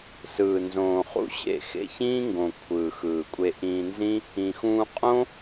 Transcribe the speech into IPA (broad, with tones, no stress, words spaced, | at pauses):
sɯː˨ nzõː˨ χṵ˦ɕḛ˦˨ xḛ˧ çĩː˦ŋɡõ˨ kʷʰɯː˨xɯː˨kʷʼe˧ ʔĩː˧nzĩ˦ | ĩ˨xũː˧ qʼõ˦